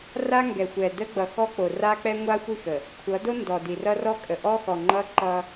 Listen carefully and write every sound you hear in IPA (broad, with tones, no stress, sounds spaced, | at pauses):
r a˦ ŋ ɡ ɛ˨ xʷ ɛ˨ d ə˦ ɡ͡b ʌ˨ x ɔ˦ k͡p o˨ r a˦ k͡p ɛ˦ ŋʷ a˦ xʷ i˦˨ x ə˨ | kʷʰ ʌ˨˦ d o˦ n d ɔ˨ d i˨ r ʌ˦ r ɔ˦ kʼ ə˨ ʔ ɔ˦ x ɔ˨ ŋ͡ǃ ʌ˦ ǃ ʌ˦